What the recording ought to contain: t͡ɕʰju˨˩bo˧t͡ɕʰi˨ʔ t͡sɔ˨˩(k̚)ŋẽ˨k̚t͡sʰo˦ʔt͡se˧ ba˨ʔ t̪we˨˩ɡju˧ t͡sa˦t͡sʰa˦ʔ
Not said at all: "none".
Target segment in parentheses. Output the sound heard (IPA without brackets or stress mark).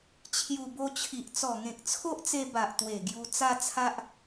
none